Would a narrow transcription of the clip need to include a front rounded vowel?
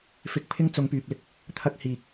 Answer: yes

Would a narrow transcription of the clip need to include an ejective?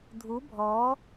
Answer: no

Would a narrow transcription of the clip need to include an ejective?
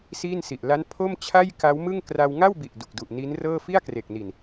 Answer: no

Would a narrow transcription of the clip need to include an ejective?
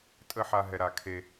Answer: yes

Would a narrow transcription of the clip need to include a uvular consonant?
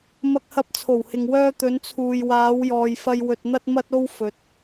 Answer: no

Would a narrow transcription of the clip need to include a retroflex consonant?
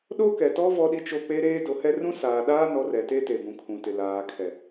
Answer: no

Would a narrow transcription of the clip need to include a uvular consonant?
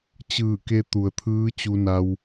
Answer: no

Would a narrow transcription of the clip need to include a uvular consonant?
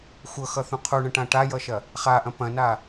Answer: yes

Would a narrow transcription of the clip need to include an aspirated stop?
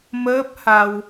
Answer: no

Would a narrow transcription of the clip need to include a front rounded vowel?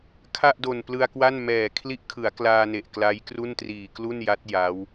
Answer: no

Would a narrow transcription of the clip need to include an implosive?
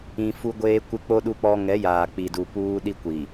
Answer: yes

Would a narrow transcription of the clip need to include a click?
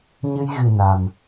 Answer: no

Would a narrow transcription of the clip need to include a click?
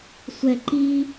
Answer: yes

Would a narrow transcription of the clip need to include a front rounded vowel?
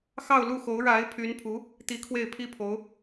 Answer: yes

